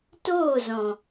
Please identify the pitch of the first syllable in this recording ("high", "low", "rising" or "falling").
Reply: falling